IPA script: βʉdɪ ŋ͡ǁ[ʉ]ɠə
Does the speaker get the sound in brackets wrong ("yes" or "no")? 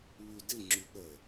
no